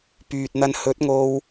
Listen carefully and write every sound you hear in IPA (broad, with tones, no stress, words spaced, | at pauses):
pyː˨t̚n̪ɐ˧n hɵ˨˥t̚ŋo˧w